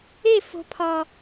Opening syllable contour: falling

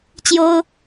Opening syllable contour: high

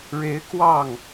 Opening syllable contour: rising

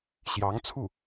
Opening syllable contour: rising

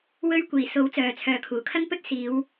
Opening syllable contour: high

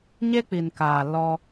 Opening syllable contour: high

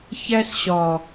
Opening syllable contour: high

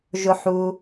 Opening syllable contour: low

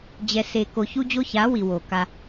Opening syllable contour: low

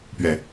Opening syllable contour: low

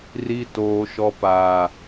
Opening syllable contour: low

